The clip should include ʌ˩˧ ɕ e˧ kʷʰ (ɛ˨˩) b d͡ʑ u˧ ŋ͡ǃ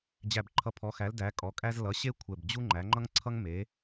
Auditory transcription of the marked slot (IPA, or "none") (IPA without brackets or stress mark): ɛ˨˩